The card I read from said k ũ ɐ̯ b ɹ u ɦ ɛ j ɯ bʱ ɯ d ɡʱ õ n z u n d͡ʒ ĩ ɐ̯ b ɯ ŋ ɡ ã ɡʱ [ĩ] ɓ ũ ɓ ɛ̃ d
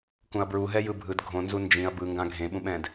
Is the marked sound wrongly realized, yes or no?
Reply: yes